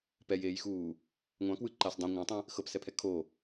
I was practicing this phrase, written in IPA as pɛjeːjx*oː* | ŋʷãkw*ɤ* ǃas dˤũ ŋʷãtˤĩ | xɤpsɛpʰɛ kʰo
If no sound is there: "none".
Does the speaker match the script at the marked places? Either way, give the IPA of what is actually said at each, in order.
uː, ɯ

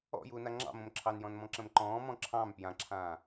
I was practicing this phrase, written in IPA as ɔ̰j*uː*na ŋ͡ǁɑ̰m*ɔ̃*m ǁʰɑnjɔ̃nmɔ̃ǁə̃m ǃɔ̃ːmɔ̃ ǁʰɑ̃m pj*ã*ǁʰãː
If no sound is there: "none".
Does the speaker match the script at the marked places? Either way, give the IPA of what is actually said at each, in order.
uː, õ, ã

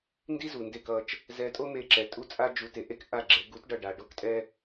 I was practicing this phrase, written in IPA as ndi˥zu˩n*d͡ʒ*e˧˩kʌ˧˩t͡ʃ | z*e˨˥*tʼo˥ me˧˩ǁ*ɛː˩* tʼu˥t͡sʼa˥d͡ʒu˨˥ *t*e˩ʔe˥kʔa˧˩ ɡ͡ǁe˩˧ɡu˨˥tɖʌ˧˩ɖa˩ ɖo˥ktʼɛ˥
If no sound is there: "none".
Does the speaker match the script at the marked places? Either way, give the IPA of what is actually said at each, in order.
d, ɛ˨˥, ɛ˩, t

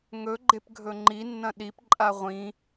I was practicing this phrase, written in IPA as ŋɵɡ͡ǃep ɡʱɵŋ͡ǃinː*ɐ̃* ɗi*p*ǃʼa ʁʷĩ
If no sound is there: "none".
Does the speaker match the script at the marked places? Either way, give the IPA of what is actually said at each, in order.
ɐ̃, p

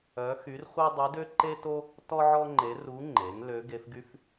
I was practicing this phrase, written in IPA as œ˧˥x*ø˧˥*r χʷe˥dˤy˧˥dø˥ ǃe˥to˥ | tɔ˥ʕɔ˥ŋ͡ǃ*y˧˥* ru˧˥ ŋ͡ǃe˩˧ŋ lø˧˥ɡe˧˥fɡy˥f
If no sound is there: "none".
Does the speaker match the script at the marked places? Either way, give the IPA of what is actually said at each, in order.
y˧˥, e˧˥

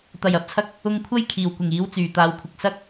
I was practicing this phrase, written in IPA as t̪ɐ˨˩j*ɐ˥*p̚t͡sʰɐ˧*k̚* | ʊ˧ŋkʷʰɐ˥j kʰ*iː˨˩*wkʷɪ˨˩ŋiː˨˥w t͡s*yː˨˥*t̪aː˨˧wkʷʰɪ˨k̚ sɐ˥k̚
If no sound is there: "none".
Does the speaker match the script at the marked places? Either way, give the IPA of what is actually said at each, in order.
ɐ˨˥, k̚, iː˨˩, yː˨˩

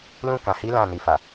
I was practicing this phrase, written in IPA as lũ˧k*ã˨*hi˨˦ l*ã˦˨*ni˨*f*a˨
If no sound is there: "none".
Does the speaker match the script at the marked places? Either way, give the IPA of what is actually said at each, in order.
ã˨, ã˦˨, f

